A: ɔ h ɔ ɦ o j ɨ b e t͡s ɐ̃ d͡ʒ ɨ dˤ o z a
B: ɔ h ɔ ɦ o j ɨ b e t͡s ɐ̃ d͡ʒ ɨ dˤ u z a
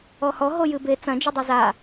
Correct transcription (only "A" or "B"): A